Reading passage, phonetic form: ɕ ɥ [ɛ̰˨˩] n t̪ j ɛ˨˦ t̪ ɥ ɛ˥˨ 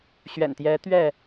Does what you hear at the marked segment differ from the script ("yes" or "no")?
no